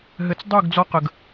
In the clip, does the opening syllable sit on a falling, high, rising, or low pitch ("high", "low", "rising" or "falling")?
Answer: low